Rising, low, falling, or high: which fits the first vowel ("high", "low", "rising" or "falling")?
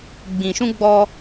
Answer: low